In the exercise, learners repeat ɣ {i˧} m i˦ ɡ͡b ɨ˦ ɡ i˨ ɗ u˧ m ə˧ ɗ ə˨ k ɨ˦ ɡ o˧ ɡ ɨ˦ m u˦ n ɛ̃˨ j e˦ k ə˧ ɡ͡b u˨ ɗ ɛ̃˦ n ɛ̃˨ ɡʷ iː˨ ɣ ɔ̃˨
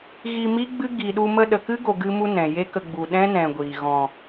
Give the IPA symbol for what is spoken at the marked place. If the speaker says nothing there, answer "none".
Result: i˧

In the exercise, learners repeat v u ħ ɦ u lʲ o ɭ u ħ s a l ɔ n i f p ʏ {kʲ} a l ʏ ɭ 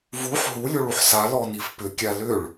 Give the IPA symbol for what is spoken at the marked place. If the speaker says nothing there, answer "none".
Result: kʲ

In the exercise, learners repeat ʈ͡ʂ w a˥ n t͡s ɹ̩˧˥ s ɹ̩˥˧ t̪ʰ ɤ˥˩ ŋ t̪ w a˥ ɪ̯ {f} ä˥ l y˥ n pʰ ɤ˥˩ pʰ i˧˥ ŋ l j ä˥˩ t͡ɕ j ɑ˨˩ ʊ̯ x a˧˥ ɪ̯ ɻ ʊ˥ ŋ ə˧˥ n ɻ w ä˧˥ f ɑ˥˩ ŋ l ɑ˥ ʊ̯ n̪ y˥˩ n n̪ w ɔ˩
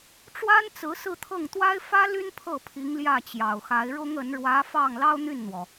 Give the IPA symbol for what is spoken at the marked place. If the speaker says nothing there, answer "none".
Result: f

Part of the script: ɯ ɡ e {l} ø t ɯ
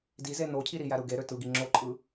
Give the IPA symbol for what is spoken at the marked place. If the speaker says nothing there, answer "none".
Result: ɾ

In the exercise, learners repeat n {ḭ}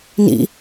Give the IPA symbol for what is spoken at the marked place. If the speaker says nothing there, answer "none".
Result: ḭ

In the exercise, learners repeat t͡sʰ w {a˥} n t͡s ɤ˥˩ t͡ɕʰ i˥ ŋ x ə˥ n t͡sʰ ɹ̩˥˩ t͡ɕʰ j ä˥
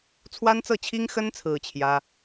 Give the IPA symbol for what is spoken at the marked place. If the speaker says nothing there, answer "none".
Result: a˥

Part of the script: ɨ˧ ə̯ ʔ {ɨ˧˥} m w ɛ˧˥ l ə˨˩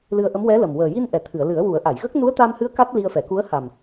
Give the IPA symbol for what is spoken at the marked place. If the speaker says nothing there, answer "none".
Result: ə˧˥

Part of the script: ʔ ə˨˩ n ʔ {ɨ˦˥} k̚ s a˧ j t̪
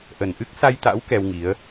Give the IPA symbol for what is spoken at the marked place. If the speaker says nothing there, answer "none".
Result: ɨ˦˥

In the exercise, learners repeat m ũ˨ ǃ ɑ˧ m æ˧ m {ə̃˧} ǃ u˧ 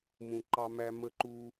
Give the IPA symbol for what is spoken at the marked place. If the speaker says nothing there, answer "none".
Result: ə˧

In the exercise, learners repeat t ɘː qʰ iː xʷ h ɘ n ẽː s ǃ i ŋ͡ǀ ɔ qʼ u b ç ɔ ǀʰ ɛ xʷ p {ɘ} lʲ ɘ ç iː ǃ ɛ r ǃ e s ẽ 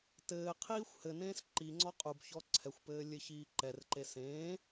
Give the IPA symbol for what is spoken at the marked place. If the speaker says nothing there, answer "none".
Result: ɘː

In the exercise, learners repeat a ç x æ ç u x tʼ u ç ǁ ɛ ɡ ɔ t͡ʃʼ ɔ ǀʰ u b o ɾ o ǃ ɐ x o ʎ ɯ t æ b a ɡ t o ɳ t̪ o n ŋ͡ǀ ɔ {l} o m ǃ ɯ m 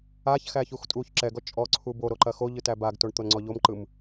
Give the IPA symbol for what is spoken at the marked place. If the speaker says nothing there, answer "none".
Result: ʎ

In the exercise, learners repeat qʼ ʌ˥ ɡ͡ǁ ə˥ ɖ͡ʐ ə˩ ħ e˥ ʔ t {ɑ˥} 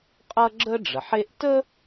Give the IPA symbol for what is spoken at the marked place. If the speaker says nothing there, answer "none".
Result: ə˥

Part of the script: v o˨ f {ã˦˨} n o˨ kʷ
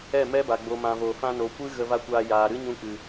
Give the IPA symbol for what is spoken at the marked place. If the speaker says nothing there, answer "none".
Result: ã˧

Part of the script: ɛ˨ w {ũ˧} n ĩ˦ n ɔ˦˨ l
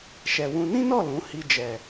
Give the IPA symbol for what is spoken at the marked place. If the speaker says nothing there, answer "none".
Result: ũ˧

